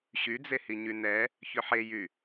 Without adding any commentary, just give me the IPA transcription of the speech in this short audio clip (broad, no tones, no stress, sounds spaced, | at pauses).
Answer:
ɕ y d͡z e h i ɲ y n ɛ | ç ʏ ħ e j y